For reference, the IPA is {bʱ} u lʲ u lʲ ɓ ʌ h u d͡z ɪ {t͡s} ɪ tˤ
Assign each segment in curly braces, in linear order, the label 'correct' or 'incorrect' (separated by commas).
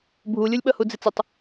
correct, correct